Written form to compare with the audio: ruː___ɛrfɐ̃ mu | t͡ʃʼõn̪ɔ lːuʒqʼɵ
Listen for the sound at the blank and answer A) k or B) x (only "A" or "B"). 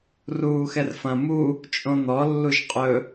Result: B